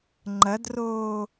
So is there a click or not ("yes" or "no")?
yes